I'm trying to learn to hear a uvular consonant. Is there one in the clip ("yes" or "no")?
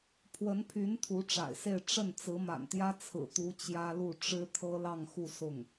no